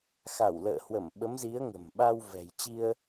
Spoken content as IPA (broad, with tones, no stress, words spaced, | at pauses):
xa˧˩wlə̰ː˧˨hwə˧˩m ɓə˨˦mzi˨˦ə̯ŋə̤˨˩mɓa˧w vɛ̤˨˩jt͡ɕi˧ə̯